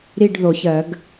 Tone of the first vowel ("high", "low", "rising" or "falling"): falling